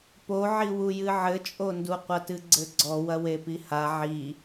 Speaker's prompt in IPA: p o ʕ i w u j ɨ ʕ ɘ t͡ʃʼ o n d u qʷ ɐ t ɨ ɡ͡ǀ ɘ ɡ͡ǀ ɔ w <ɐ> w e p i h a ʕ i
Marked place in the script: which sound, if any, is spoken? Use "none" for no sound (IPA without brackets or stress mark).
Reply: ɐ